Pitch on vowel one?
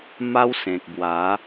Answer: high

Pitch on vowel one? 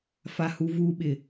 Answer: high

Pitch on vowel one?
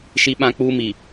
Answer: high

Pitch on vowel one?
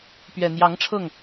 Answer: low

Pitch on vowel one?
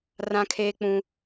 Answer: high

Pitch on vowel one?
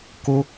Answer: high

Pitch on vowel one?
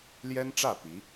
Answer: high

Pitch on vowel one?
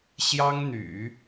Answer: high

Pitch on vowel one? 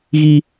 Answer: high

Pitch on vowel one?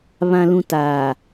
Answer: low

